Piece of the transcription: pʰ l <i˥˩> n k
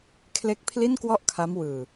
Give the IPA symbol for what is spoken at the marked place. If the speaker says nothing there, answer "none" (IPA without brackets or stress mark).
i˥˩